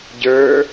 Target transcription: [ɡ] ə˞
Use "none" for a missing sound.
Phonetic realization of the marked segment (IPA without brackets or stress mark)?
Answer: ɟ